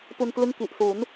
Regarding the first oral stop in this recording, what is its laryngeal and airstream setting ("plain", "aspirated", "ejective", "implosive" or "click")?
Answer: plain